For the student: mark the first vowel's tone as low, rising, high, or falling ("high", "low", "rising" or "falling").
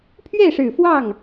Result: falling